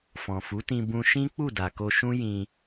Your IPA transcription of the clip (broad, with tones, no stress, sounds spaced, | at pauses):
f ɔ̃˨ f u˨˦ t ĩ˧ b ũ˧ ʃ ĩ˦ k͡p u˦˨ d a˨ k o˧ ʃ ũ˦ j ĩ˧